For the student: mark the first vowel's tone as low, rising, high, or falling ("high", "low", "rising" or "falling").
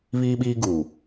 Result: high